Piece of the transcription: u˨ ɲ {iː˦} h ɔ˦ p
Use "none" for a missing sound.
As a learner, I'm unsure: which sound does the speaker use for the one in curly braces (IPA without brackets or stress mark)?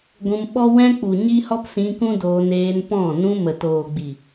i˦